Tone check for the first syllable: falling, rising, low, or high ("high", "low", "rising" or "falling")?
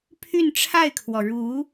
falling